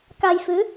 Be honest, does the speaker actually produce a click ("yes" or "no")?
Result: no